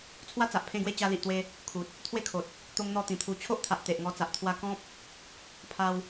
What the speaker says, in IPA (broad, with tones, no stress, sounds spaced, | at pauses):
t͡sʰ w a˦ t͡s a˨ ʔ pʰ ẽ˥˧ ɡ w e˦ t͡ɕ a˧ l i˨ ʔ t̪ w e˧ | kʰ u˨ t̚ | t̪ʰ w e˥˧ kʰ o˨ t̚ | t̪ o˦ ŋ n̪ ɔ˥˧ t̪ ĩ˨˩ t̪ʰ u˨˩ t͡ɕʰ o˦ ʔ t̪ʰ a˨ ʔ t̪ e˨ ʔ ŋ ɔ˧ t͡s a˨ ʔ t̪ʰ w a˧ k ɔ̃˦ p̚ | pʰ a˧ w